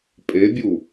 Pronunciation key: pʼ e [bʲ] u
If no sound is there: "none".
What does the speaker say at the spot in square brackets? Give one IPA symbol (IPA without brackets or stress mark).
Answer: bʲ